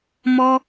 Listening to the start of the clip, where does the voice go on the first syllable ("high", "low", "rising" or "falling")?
high